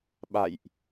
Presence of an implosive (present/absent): present